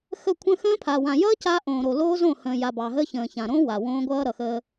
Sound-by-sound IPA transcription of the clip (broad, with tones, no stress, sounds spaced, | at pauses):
x ə˦˨ kʷʰ ə̃˦ x ə̃ː˦ pʰ a˨ w ã˨ j ʌː˦ c a˦ ʔ õː˨ ɾ o˨ l oː˦ z õ˦˨ h ə̃ː˨ j a˨ b ɑ˨ ɦ əː˦ ç ə̃ː˨ ç ã˨ ɾ õː˦ w a˨ w õː˦ ɡʷ ʌː˦ ɾ ʌ˨ x əː˦